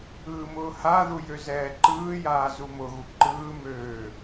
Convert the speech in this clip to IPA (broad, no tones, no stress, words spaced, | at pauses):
ɯːmʊːhaðu jøzɛːǃɯːjaː zumʊɣu ǃɯːmøː